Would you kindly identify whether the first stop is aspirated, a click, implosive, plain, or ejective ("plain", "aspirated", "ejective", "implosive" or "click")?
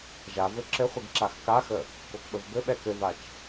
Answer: click